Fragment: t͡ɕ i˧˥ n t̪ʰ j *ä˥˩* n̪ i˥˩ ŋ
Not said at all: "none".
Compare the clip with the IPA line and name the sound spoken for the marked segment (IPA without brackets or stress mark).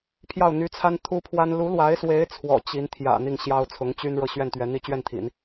ä̰˨˩